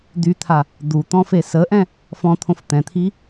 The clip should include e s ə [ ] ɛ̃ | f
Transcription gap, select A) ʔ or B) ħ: A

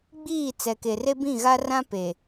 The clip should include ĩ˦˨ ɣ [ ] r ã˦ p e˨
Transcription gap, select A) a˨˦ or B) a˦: B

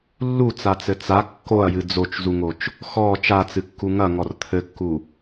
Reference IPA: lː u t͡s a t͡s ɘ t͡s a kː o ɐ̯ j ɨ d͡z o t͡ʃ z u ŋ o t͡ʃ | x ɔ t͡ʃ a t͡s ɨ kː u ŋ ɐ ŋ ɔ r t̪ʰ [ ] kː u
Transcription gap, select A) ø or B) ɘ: B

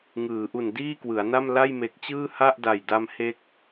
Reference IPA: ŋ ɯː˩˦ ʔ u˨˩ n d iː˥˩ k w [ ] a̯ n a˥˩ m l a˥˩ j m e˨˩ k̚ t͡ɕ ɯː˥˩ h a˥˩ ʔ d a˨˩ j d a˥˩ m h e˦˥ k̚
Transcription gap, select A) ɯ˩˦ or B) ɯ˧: A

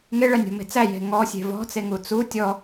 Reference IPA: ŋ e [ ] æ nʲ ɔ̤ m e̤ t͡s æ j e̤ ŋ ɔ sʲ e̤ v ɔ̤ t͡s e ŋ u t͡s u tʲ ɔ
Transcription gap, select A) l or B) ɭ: B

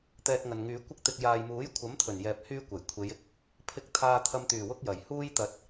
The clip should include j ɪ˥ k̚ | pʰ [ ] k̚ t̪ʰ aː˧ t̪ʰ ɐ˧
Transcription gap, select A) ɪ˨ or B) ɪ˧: B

